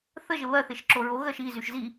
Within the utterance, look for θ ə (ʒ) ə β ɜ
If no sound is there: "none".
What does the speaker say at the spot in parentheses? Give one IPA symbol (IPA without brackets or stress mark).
ʒ